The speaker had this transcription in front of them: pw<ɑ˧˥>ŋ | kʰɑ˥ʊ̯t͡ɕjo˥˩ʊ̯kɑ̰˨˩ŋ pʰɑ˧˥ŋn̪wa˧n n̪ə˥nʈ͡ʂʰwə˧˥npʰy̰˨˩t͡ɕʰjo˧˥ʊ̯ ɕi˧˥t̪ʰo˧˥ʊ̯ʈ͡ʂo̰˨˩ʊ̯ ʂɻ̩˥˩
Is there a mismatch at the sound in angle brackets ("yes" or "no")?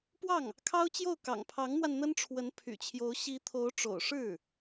yes